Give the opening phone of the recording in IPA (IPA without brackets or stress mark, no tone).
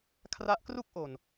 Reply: kʰ